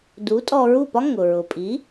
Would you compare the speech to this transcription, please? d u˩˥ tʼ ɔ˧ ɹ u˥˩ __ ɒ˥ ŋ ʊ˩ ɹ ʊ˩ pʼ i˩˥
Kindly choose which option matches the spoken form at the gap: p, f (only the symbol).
p